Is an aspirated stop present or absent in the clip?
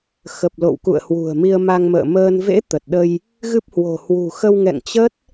absent